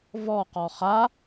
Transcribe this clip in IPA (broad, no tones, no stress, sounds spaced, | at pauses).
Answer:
v ɔ q ɔ χ a